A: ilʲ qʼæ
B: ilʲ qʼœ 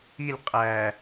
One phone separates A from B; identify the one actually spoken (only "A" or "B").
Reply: A